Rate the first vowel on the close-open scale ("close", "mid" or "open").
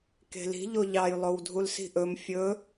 mid